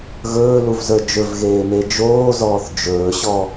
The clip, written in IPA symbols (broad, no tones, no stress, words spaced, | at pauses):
ɣɵːluvzə˞ d͡ʒɵvɣeːme d͡ʒoːzɔːθ d͡ʒɵːɕɔ